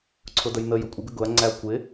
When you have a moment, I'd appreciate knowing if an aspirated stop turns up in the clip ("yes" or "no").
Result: yes